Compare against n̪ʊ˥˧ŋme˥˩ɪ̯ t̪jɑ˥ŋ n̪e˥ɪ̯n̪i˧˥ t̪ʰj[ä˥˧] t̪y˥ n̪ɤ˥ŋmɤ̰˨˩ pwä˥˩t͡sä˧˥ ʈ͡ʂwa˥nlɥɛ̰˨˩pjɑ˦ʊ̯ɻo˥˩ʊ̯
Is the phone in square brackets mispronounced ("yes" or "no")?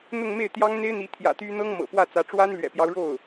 yes